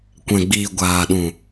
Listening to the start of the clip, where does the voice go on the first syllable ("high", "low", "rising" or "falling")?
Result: low